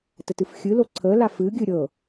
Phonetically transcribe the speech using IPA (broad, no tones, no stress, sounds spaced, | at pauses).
t ə t ɨ f xʲ ɨ l o ǀʰ ə l a f ɨ ɡʲ ɨ ɾʲ ɤ